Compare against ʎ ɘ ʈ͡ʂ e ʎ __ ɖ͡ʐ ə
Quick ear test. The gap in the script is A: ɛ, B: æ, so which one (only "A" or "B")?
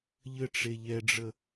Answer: A